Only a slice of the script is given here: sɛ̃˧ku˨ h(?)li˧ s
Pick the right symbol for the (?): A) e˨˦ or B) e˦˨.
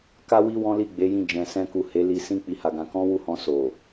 A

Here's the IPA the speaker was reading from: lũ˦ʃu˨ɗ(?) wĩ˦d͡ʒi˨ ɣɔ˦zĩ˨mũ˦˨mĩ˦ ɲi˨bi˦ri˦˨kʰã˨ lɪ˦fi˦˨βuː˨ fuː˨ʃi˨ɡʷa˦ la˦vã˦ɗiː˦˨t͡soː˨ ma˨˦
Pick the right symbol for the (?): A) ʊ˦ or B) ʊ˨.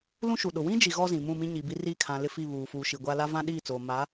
B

